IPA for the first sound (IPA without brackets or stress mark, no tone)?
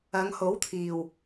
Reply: ɐ